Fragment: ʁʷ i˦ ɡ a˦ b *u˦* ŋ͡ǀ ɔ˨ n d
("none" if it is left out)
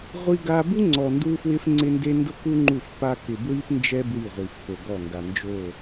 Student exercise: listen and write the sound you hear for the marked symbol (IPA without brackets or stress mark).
u˦